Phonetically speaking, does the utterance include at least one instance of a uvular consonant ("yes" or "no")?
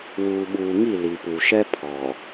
no